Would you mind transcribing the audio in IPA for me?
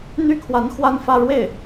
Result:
n̪y˥kʰwa˧˥n xwa˥nfä˥˧ ɻwe˥˩ɪ̯

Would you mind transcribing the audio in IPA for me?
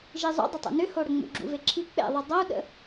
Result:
ʒizˤṵdˤʏtˤṵ nʏhoɽə ŋ͡mṵɡ͡ǁṵveǁʰi k͡pḛðˤu dˤou̯ɗə̰

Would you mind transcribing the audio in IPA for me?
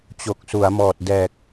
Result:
t͡ɕo˨˩k̚su˩˦a̯ mɔː˨˩t̚dɛː˨˩k̚

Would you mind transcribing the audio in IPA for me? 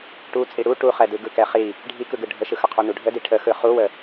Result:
ʈu t͡sʼiɽu ʈuχɛdɯ ɡɯkɛχi | ɖʱikɯɡɯ ɖʱəʃɯxəqʰu nuɖʱədi ʈʰəxɯ χuwə

